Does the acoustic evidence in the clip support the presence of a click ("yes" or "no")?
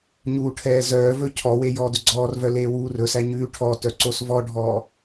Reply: yes